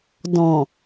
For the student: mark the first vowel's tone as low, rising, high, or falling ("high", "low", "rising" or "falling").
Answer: low